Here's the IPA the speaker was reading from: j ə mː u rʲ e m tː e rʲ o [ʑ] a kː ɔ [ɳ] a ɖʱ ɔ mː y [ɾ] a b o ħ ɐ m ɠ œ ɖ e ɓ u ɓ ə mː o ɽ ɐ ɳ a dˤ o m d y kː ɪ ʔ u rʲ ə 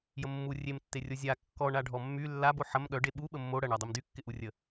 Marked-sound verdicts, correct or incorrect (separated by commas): incorrect, correct, incorrect